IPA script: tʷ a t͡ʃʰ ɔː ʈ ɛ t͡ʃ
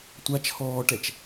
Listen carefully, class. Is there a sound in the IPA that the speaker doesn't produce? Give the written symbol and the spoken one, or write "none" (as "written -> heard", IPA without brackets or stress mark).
none